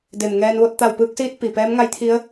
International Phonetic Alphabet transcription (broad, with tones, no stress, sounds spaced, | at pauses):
d e˩ m ŋ ɛː˧ n ʋ o˥˨ t̚ t̪ a˧˩ w p ɯː˧ k̚ s iː˧ t̚ p i˩ p ɛː˧˥ m ŋ a˧˥ j t̪ʰ i˧˥ ə̯